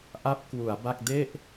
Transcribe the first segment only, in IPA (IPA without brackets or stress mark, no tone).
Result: ʔ